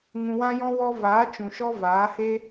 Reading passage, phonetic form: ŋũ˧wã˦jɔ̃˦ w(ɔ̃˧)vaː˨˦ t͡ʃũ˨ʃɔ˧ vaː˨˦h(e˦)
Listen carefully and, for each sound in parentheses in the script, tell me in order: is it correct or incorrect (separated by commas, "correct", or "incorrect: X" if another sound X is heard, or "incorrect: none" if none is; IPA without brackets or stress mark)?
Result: incorrect: ɔ˧, correct